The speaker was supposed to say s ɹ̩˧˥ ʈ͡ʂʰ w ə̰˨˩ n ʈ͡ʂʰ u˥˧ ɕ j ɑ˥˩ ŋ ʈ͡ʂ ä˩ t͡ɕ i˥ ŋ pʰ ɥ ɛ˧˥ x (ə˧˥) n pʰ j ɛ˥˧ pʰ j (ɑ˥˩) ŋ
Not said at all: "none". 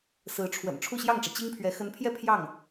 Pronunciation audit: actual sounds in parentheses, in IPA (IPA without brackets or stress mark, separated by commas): ə˧˥, ɑ˥˩